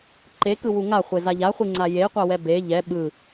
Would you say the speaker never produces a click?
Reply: no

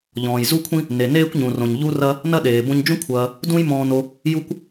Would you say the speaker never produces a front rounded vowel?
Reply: yes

